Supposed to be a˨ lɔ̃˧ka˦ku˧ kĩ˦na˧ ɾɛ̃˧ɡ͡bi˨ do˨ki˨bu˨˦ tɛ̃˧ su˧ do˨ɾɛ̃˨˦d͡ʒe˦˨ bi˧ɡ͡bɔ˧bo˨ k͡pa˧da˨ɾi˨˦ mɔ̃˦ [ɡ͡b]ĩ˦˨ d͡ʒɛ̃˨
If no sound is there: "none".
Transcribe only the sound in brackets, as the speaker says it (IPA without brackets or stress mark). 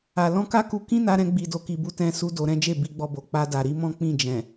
k͡p